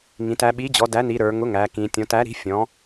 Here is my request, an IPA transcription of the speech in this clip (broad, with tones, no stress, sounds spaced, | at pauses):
ŋ ĩ˩˧ t æ˩˧ ɓ i˩˥ d͡ʑ ɔ˩˧ d æ˩˥ n i˩˧ ɾ ə˞˩˧ ŋ ʊ˩˥ ŋ æ˩˧ k ĩ˩˧ tʲ ɔ̃˩˧ t æ˩˥ ɾ i̤˩˥ fʲ ɔ̃˩˥